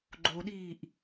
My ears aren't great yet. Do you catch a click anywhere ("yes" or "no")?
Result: yes